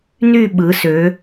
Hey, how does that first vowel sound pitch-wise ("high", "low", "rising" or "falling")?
falling